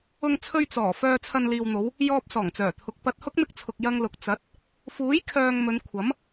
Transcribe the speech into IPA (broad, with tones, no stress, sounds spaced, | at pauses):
ʊ˧ ŋ t͡sʰ ɵ˧ ɥ t͡s ɔː˨˩ f œː˨ t͡sʰ ɐ˨ n l iː˨ w n̪ o˨˧ w | j ɔː˧ p̚ s ɔː˨˩ ŋ t͡s œː˨˩ t̪ʰ ʊ˨ k̚ p ɐ˧ t̚ h ʊ˥ k̚ m ɪ˧ k̚ t͡sʰ ʊ˨ k̚ j ɐ˧ ŋ l ʊ˨ k̚ t͡s ɐ˨˥ t̚ | f uː˨˥ j kʰ œː˨ ŋ m ɵ˨˧ n kʷʰ ɐ˨˥ m